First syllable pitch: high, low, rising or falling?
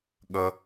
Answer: low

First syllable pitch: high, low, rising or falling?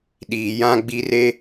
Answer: low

